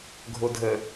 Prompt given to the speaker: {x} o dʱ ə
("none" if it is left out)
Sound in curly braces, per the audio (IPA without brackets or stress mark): ɡʱ